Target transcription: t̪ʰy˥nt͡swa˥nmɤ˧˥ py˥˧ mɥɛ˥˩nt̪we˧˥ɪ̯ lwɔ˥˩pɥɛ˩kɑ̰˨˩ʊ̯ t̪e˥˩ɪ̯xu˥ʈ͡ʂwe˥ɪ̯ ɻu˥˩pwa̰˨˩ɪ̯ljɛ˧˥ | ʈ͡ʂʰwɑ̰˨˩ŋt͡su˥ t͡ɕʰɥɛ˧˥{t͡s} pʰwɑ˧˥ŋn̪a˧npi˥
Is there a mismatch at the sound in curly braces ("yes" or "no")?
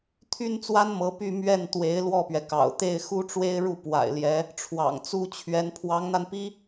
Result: yes